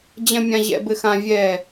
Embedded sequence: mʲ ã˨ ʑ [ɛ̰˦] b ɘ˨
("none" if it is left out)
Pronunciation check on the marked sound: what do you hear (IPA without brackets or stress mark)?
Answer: ɛ̰˨